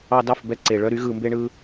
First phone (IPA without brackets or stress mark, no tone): ɑ